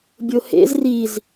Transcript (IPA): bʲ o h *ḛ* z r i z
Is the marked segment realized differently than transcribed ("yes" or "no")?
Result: no